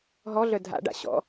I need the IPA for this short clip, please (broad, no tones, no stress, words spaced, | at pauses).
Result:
ɦɔɮœ dʱa̰ɖa̰ ɕɔ̰